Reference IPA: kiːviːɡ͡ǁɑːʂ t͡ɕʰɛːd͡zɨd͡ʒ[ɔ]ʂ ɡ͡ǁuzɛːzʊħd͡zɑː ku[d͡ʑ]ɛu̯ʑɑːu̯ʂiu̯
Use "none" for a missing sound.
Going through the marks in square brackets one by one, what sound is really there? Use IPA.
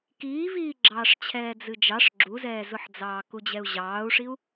ɑ, d͡ʑ

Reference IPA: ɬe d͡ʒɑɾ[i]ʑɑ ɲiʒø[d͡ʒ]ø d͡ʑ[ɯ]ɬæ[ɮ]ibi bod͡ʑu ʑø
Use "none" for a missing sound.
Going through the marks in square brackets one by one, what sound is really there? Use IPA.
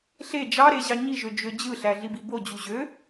e, d͡ʒ, ɯ, ɮ

